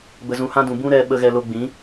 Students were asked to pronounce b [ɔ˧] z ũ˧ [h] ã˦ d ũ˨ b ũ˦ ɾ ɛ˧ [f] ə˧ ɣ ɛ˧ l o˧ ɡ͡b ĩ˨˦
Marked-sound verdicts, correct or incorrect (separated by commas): incorrect, correct, incorrect